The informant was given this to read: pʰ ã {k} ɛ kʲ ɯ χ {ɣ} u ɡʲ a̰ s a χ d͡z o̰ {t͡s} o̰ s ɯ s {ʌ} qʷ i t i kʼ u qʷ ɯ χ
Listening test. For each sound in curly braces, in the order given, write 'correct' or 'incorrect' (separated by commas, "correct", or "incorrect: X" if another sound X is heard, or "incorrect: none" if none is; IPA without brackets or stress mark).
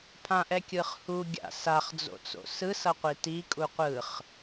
incorrect: ʔ, incorrect: h, correct, correct